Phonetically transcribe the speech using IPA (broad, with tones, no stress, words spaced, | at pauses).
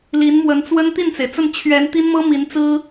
li˧˥nmwə˧˥nt͡swə˥n t̪i˥˩nt͡se˩ɪ̯t͡sə˥˩n t͡ɕʰɥɛ˧˥n t̪i˥nmɤ˥ mi˧˥nt͡sɹ̩˥